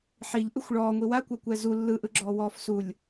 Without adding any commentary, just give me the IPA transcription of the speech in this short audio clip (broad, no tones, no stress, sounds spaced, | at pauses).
ħ i ʎ ʔ ɯ xʷ ɭ ɔː ŋʷ i w a kʷ a kʷ ɛ z u lː ɯ ʔ ɯ ɡ͡ǁ ɔː w ɔː f s u lʲ